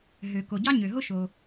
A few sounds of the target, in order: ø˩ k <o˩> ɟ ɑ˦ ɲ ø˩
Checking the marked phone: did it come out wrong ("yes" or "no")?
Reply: no